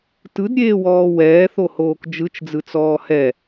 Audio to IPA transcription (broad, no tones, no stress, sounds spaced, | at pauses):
t ɯ d ɾʲ eː w ɔː w ɛː θ o h oː k d͡ʒ ɯ t͡ʃ d͡z ɯ t͡s ɔː h ɛ